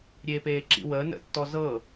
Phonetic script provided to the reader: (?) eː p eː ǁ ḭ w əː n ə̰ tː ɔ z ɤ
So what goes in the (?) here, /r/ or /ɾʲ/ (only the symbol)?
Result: ɾʲ